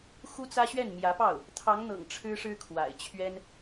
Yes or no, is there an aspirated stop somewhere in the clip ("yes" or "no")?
yes